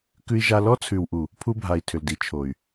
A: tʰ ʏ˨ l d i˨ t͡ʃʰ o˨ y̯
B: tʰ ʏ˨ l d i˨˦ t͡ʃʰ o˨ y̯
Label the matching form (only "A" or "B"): B